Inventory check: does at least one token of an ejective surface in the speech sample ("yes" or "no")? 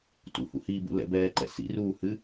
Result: no